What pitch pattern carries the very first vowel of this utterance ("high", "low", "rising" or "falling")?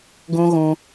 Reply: high